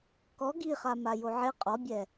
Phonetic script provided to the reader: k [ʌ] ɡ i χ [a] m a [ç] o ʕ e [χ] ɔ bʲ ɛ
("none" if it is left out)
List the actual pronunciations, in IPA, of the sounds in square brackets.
ɔ, a, j, qʼ

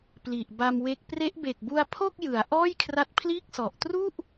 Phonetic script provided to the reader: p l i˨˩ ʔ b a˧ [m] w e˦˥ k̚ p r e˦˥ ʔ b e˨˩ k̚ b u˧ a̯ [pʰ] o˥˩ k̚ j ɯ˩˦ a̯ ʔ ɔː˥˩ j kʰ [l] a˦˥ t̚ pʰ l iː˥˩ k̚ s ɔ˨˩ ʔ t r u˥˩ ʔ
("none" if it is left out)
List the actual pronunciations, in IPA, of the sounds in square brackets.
m, pʰ, r

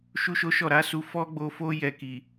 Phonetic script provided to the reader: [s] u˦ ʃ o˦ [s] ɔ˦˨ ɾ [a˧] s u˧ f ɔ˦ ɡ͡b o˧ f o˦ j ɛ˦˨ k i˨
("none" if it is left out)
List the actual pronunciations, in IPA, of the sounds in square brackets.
ʃ, ʃ, a˨˦

